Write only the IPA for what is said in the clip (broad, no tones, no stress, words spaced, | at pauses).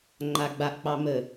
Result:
ŋ͡ǃaɡ͡baʔk͡pɑ mə